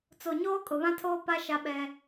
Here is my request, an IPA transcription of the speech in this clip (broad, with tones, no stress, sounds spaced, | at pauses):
t͡s o˨ ɲ oː˦ kʼ ʊ˨ β ã˦ tʰ oː˦ p a˦ ʃ a˦ ɓ ɛ˦